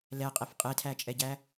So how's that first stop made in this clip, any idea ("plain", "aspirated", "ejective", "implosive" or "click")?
ejective